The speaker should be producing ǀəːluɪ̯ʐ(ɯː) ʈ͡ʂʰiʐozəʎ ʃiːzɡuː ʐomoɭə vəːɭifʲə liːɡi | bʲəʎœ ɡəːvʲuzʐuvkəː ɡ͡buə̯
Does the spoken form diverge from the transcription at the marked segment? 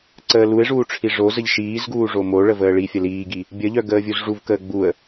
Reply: yes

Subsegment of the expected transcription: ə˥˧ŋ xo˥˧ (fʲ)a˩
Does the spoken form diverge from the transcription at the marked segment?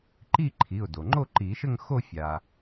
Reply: no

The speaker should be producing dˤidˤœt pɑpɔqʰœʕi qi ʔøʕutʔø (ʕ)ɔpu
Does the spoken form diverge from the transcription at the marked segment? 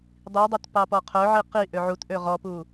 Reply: yes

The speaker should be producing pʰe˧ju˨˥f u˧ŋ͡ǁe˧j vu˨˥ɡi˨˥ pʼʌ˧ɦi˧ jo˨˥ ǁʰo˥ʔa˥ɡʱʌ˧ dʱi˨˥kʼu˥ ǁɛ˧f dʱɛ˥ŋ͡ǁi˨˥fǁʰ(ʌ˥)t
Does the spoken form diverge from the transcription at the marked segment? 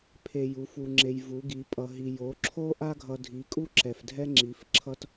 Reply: no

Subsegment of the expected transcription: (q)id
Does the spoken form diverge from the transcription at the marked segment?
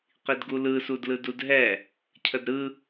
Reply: no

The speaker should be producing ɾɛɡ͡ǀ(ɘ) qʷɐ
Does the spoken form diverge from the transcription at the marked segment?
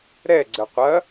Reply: no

